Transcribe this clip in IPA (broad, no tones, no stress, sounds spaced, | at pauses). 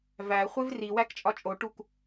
v æ χʷ e v r i w æ k t͡ʃʼ ɒ t͡ʃʼ o ʈ u k